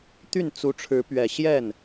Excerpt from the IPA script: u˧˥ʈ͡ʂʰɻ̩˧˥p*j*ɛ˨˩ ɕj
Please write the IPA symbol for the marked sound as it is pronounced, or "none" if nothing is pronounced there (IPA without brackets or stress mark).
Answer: ɥ